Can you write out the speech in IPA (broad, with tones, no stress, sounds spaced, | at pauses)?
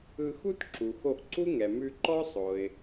ɯ˧ x u˥ t ǁ u˩ x o˧ ʔ ǀ u˥ ŋ ɛ˩ m ʉ˧ ǃ ɔ˥ sˤ o˩ ɪ̯